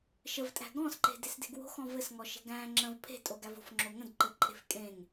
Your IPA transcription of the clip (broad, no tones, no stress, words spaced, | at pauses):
ʃəvtʼæ̤ ɡɔ̃sǃe̤ desde̤ɡwo̤ xɔ̃vɘsŋɔ ʃe̤ɡæ̃ ŋ͡ǁə̃v pʰe̤ tʼoɡævo̤f ŋ͡ǁoŋə̃dǃɘǃʼe̤f kʼẽŋ